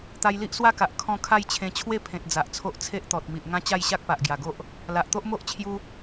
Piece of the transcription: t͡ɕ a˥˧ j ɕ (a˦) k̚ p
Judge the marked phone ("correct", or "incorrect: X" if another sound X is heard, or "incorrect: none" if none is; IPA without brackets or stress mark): correct